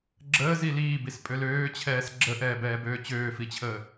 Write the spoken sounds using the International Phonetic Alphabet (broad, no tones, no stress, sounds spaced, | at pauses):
ɡ͡ǁ əː z i l iː b i s pʼ ø l øː t͡ɕʰ ɛː s ɡ͡ǁ ə ʔ ɛː b ɛː b øː t͡ɕ øː f i t͡ɕʰ əː